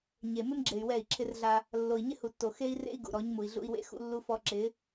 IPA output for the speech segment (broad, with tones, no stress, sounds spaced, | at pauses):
ɲ e˨ m ɪ˦ m ɡ͡ǁ e˨ y̯ w ɛ˦˨ i̯ ǁʰ ɪ˦ r ɮ a˦ | lː o˨ i̯ ɲ ɪ˦ h u˨ tː o˨ x e˦ i̯ r ḛ˦ i̯ ɡ ṵ˨ ɾ ɔ˨˦ ɲ m u˨ i̯ ɮ ṵ˦ i̯ w ḛ˦ x ṵ˦ lː u˦ f ɔ˦ ǁ ɪ˨˦